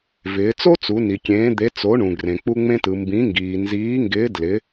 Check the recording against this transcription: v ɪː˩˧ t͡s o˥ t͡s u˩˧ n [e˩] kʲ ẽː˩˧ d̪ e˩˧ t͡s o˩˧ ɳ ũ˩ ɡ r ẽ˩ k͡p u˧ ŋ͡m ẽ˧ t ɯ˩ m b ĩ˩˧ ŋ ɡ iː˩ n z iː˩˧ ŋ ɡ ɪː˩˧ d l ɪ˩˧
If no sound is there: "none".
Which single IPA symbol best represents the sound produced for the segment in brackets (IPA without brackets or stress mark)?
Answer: i˩